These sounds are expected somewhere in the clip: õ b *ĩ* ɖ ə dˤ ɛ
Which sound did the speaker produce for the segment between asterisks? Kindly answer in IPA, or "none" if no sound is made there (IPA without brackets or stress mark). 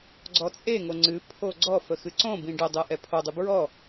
ĩ